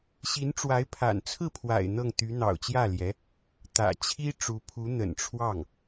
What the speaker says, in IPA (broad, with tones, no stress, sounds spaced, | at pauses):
ɕ i˧˥ n ʈ͡ʂ w a˧˥ ɪ̯ pʰ a̰˨˩ n t͡sʰ ɹ̩˥˩ pʰ w a̰˨˩ ɪ̯ n̪ ɤ˥˩ ŋ t̪ y˧˥ n̪ ɑ̰˨˩ ʊ̯ t͡ɕ j ä˥˩ l j ɛ˧˥ | t̪ ä̰˨˩ t͡ɕʰ i˥ ʈ͡ʂ u˧˥ pʰ u˧˥ n̪ ə̰˨˩ n ʈ͡ʂʰ w ɑ˥˩ ŋ